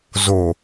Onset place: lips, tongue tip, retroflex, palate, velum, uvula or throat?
tongue tip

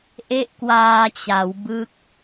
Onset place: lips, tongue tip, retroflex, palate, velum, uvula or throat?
throat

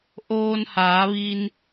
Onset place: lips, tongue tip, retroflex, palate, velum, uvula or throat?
throat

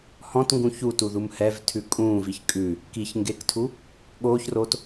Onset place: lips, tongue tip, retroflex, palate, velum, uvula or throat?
throat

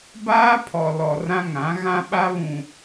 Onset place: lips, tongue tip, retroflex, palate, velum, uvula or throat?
lips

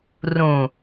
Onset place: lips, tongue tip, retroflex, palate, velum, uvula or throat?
tongue tip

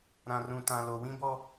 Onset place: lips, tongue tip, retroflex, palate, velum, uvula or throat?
tongue tip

